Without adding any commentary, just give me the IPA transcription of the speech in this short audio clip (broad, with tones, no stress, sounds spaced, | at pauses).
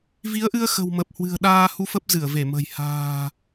v i˨˦ ə̯ ʔ ɨ˧ ə̯ x ə̤˨˩ w m ə˨˩ p̚ h w ɨ̤˨˩ ə̯ ɗ aː˧ h u˧ f ə˦˥ p̚ z ɨ˧˩ ə̯ v e˧˩ m ə̤˨˩ j h a̤ː˨˩